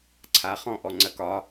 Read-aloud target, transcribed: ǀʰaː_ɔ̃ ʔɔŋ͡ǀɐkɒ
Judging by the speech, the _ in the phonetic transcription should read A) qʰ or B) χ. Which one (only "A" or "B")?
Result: B